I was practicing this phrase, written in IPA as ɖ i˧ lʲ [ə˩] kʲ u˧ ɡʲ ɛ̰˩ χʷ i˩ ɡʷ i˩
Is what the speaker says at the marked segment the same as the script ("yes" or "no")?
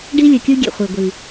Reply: no